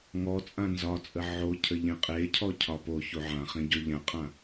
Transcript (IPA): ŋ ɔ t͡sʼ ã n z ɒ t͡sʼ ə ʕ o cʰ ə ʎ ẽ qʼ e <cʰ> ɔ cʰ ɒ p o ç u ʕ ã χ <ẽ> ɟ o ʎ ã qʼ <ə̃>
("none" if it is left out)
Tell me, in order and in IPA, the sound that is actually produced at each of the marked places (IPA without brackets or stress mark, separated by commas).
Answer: cʰ, ẽ, ã